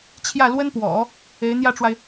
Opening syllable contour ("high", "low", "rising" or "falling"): falling